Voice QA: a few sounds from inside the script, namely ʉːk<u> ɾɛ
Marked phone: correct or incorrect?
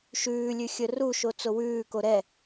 incorrect